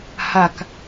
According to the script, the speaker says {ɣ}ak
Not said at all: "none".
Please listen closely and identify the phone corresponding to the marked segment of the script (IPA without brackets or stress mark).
h